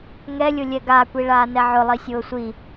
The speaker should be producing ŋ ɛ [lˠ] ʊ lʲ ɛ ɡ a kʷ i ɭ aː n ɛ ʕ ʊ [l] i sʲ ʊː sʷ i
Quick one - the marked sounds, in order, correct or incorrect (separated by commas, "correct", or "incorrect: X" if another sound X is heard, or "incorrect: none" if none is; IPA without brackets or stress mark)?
incorrect: lʲ, incorrect: lˠ